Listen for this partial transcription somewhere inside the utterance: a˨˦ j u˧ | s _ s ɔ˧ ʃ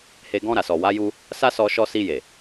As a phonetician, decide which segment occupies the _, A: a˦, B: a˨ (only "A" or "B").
A